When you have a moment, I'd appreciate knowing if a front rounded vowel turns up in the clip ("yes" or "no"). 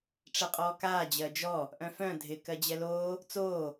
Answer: yes